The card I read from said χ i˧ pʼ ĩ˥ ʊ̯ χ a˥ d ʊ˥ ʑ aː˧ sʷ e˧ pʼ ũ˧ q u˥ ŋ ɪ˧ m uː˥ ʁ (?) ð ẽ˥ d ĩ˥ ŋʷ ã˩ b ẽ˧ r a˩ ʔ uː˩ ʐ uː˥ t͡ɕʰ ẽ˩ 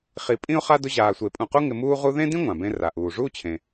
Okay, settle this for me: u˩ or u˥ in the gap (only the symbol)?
u˥